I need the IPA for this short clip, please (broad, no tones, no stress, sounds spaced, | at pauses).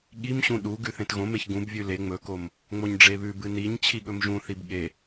ɠ i m ɕ ũ ɗ u ɡ ʉ θ ẽ t ɣ õ m e ç ɡ ũ b vʲ ʉ l e ŋ͡m ɵ k o m | ŋ͡m o ɲ ɖ͡ʐ e β ʉ b ɨ n i ɲ t͡ɕʰ i ɠ ɵ m ʒ ũ θ i b ɠ e